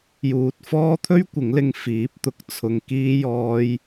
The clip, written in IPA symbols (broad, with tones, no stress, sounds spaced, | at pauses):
j uː˨ t̚ f ɔː˥ t̪ʰ ɵ˥ ɥ kʷ ɪ˨˥ ŋ l ɪ˧ ŋ f iː˨˥ p̚ t̪ ʊ˧ k̚ t͡sʰ ʊ˧ ŋ k iː˥ j ɔː˥ j